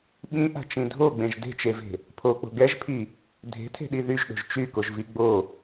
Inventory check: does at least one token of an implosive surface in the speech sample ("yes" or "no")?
yes